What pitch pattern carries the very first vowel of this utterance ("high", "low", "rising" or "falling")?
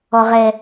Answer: low